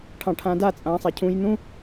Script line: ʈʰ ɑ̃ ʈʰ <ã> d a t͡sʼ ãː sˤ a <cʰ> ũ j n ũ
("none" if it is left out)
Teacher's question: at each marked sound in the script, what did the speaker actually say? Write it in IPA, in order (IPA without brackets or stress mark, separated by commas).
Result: ã, cʰ